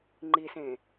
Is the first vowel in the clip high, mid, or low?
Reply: high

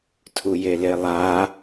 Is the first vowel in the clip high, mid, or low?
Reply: high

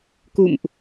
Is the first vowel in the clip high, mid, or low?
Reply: high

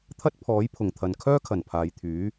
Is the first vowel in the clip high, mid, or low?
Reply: low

